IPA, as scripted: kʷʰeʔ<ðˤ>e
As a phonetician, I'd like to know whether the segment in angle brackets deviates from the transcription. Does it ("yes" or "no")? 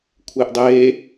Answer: yes